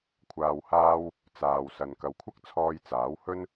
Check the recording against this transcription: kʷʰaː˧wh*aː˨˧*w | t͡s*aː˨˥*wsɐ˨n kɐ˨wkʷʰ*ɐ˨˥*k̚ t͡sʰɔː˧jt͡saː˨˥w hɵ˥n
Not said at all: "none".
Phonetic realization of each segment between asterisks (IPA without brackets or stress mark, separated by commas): aː˥, aː˨, ɐ˥